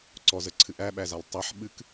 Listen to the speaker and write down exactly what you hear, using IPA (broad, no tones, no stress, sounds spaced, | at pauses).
ǀ ɔ z ə ǀʰ ɨ ʔ æ ɓ æ z a lˠ tˤ æ ħ ɓ ɨ k